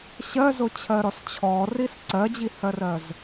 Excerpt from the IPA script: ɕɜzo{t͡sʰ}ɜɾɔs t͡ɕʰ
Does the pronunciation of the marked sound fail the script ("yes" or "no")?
yes